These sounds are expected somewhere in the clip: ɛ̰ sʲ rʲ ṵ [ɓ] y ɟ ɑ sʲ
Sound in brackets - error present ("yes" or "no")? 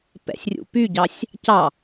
yes